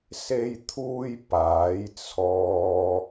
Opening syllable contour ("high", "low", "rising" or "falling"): high